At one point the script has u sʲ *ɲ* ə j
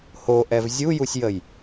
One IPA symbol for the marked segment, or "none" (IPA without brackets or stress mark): j